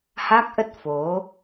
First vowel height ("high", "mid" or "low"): low